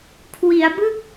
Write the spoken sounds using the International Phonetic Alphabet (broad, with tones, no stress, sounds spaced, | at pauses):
kʰ w i˩˦ a̯ b ɯ˥˩ k̚